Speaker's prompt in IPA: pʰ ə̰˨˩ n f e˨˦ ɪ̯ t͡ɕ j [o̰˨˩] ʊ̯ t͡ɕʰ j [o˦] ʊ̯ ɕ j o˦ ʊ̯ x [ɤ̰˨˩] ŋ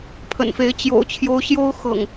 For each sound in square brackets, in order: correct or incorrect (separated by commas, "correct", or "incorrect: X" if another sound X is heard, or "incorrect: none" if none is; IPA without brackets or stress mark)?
correct, correct, correct